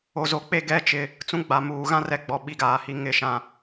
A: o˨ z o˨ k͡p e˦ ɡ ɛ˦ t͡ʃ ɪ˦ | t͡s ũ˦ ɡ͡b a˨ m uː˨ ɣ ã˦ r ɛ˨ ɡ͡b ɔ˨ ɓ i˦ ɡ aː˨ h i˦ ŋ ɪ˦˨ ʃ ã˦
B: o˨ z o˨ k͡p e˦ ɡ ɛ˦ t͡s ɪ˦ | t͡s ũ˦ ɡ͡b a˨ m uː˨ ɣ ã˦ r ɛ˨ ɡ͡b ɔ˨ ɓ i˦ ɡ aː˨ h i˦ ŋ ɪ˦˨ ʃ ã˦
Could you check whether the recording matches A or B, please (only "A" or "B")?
A